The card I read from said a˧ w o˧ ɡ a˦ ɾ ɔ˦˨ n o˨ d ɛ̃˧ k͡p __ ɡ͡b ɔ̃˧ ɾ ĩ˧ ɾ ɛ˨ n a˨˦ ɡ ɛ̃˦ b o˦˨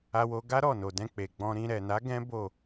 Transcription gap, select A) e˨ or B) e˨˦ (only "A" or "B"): A